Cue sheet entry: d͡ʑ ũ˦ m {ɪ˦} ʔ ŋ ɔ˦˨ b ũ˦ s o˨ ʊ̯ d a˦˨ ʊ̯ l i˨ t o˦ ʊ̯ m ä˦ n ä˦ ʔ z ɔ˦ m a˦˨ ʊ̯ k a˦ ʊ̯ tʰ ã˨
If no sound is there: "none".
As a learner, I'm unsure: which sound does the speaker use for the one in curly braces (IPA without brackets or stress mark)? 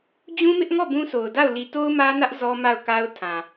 ɪ˦